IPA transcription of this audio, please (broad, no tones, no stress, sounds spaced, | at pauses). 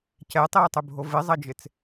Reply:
c ɛ tˤ iː tˤ ʏ bʱ o v ɪ zˤ ɐ d͡ʒ ɪ t͡s